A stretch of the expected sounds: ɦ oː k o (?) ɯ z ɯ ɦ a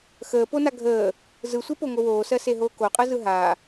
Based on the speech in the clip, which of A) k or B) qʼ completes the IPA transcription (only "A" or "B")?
B